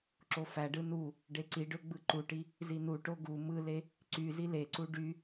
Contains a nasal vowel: no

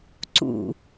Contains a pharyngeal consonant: no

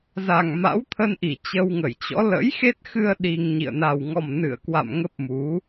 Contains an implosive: yes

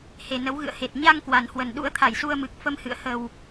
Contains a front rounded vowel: no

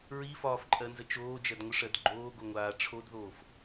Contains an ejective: yes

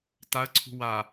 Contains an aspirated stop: yes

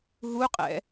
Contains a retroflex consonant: no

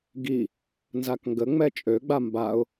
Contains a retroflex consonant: no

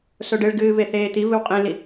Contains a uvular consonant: yes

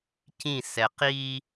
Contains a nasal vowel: yes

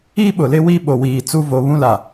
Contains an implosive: yes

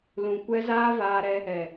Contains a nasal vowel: yes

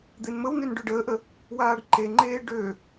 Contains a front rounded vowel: yes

